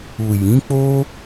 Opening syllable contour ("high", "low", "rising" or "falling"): low